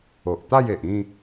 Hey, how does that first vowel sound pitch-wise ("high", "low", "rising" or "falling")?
low